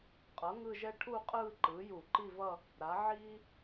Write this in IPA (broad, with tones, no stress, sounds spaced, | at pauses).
qʼ ʌ˩˥ ŋ ɯ˥˧ ʒ ɛ˥ ʈʰ u˥˧ qʼ ɯː˥˧ ǃ ɯː˩˥ j u˧˩˧ ǃ i˥˧ v ʌ˥˧ | ɾ a˩˥ ʕ iː˥